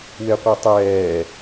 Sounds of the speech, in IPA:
w e qʷ ɛ tˤ ɛː

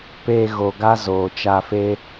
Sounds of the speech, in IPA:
p eː˧ ɣ o˨ ɡ a˦ z oː˨ t͡ʃ a˧ f e˦

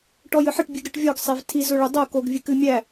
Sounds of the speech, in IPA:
ʈ ɔ j ɨ ħ ɘ ʈ bʲ ɨ ɡ ɾ ɨ ʈ vʲ ɔ ɡ sˤ e v tʰ i z ʊ ɭ ʊ dˤ o k o ɡ vʲ ɨ k ɨ mʲ æ

